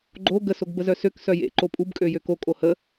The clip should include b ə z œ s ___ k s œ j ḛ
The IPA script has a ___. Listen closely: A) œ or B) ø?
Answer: B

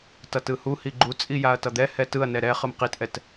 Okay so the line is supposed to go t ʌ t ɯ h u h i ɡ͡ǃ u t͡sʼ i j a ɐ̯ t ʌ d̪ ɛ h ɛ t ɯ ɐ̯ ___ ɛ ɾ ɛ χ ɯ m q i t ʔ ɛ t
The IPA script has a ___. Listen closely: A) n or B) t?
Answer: A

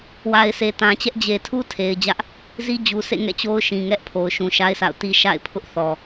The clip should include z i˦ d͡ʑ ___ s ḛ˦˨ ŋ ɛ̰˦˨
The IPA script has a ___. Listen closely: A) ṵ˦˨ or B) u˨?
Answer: B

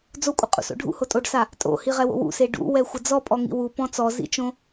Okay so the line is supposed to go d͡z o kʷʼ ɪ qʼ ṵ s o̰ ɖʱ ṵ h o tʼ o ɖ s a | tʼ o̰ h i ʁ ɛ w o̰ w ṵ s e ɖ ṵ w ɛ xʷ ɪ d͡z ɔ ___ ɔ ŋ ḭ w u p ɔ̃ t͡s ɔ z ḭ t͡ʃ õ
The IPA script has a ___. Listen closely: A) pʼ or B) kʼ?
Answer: A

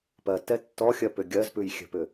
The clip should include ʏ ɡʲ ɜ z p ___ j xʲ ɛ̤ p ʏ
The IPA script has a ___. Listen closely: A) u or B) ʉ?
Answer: B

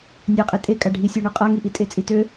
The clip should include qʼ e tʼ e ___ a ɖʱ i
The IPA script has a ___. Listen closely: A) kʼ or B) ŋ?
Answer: A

